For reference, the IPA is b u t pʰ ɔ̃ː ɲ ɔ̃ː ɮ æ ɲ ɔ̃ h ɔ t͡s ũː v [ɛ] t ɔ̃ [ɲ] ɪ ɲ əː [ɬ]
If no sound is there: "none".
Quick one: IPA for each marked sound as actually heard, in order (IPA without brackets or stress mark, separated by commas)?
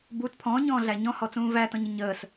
æ, ɲ, s